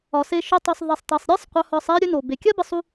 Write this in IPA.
ɒ˨ s e˧ ʃ ɵ˧ tˤ u˨ sˤ ðˤ ɛ˨ sˤ tˤ e˨ sˤ ɾʲ ɜ˦ sˤ qʷ œ˧ h ɒ˧ sˤ ɛ˦ ɾʲ ɵ˦ n o˨ b e˨ kʲ ɜ˦ b ə˧ sˤ u˧

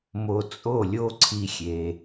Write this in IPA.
m o˧ t͡sʼ o˦˨ lʲ o˦ ǀʰ i˦ xʲ e˧

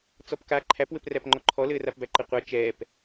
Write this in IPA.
t͡s ɔ p k a ǃʰ æ p w ɘ p r æ p ŋ͡ǃ ɔ ǃʰ ɔ l ɘː r a p b æ ǃ ɘ qʷ a t͡ʃ ɛː p

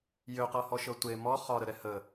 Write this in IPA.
j ø q ɤ h ɔ ʃ ɤ tʷ e m ɔ χ ɒ ɾ ə ɾ ɛ h ə

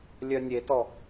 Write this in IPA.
lʲ œ nʲ e t ɔ

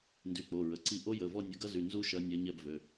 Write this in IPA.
n d y˩˧˩ k͡p o˩˧˩ ɹ ə˩˧˩ ǀ i˦˨ ʔ o˦˥ j ə˩˧˩ v ɔ˦˨ nʲ ɐ˨˦ ɡ ɐ˦˥ z y˩˧˩ n z u˦˥ ʃ ɐ˨˦ nʲ ɐ˨˦ ɲ ɛ˦˨ b v ø˩˧˩

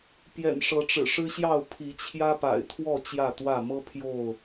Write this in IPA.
p j ɛ̰˨˩ n ʂ ɤ˨˦ ʈ͡ʂ ɻ̩˨˩ ʂ ɻ̩˦ ɕ j ɑ˥˨ ʊ̯ pʰ i˨˦ t͡ɕʰ j ä˦ p a̰˨˩ ɪ̯ t̪ʰ w ɔ˥˨ t͡ɕ j ä˥˨ t̪ w ä˥˨ m ɤ˦ pʰ j o˥˨ ʊ̯

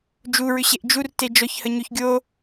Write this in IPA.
d͡ʒ u ɹ ʏ ɕ e ʔ d͡ʒ u r t e d͡ʒ ɔ ç h ə ɲ o ç ɡʲ o

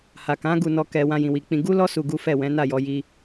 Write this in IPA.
h a˨ k ã˨˦ ɡ u˧ n ɔ˧ k ɛ˧ w ã˧ j ĩ˨ w i˨ k͡p ĩ˧ ɡ u˦ l ɔ˦ s u˧ ɡ u˦ f ɛ˦˨ w ɛ̃˨˦ n a˦˨ j ɔ˧ j i˧

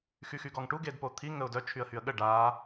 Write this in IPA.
x y x y ɡ ɔ ŋ ʈ u ɡ e d p o t̪ʰ i ŋ ə ʊ̯ d œ t͡ʃʰ y ə̯ h y ə̯ ɠ ə ɖ a

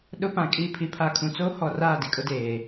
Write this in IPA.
ɗ ʊ˦ p ã˨ kʼ i˦˨ pʰ i˨ pʰ a˨ kʰ ũ˨ t͡s oː˦ h ɔ˨ r aː˦˨ d i˦ kʼ ʊ˦ d eː˨

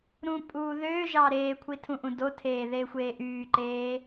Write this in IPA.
ɾ ũ pʼ uː ð øː ʒ ɑ ɾ eː kʷʰ i tʰ ũ ʔ ũ d o tʰ eː ð eː xʷ eː ʔ yː ǃ eː

